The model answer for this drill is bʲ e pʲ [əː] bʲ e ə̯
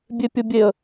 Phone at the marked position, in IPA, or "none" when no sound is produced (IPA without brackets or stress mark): ə